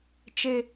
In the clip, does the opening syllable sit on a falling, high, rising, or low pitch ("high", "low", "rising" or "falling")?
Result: high